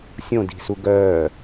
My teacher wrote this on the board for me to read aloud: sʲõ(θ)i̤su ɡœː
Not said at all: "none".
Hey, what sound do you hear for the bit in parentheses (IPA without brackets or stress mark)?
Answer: d